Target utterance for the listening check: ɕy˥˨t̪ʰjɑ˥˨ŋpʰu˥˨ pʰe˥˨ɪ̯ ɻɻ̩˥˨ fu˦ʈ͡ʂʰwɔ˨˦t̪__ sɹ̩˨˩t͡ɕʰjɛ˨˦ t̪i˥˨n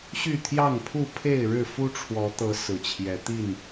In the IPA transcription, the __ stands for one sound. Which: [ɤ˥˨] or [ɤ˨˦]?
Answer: ɤ˨˦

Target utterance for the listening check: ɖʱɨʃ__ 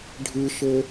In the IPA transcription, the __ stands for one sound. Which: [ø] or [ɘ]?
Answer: ɘ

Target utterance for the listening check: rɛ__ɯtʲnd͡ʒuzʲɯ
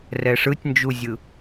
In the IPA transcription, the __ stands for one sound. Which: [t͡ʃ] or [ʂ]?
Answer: ʂ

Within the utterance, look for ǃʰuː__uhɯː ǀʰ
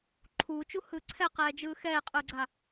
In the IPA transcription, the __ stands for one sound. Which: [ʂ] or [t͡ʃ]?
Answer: t͡ʃ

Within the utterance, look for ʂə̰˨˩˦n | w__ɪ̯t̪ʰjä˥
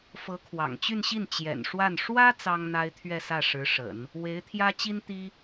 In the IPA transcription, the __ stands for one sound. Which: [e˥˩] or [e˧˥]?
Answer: e˧˥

